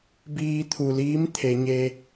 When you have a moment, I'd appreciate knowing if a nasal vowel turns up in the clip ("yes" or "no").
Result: no